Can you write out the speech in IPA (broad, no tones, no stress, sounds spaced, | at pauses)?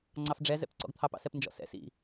ŋ͡ǀ ɑ f ɖ͡ʐ ɛ z ɛ̰ p ǀ ɔ̰ ɡ t̪ʰ ɑ p ɑ̰ s ɛ p n d͡ʒ ɔ̰ s ɛ̰ s ḭ